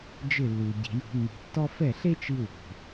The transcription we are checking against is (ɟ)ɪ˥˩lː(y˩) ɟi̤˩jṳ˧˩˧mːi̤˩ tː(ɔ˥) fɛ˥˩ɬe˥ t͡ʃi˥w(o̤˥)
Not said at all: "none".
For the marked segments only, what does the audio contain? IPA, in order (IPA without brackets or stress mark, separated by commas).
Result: d͡ʒ, u˩, ɔ˥, o̤˩